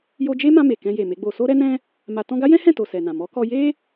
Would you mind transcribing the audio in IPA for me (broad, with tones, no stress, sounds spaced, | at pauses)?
j o˧ d͡ʒ e˦ m ã˧ m e˨ k ɛ̃˧ j e˨ m e˨˦ ɡ͡b o˧ s o˦ ɾ ɛ˦ n ɛ̃˦ | m a˧ t ɔ̃˦ ɡ a˦ j ɛ̃˦ h ɛ̃˦˨ t o˨ s ɛ˨ n ã˨ m ɔ˨˦ k ɔ˧ j e˦